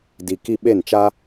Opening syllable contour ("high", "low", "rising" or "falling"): low